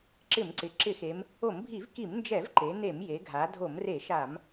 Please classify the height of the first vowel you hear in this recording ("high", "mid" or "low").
high